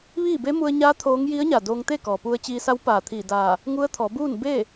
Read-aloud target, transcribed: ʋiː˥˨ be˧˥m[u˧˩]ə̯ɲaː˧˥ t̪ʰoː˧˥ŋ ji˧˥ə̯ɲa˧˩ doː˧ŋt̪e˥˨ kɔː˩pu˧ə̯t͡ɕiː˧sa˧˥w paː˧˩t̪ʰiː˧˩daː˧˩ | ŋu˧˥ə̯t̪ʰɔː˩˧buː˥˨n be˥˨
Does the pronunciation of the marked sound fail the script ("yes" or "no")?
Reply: yes